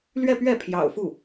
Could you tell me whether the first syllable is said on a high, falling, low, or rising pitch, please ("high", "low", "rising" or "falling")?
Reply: falling